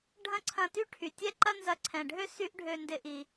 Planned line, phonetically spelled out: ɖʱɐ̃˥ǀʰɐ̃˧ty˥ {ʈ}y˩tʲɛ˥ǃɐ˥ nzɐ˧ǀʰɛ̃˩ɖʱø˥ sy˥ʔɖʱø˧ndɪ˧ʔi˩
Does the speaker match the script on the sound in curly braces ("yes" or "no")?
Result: no